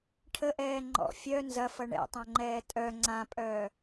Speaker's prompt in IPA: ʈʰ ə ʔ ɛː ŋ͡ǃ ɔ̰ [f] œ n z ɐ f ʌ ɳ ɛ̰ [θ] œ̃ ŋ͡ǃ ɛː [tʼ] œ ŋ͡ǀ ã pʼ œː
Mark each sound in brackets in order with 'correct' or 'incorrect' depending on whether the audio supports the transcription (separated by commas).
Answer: incorrect, incorrect, correct